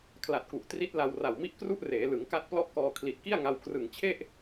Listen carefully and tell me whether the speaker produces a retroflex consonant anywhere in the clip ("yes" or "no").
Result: no